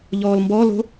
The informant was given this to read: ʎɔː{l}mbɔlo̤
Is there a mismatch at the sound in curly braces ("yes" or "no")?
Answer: no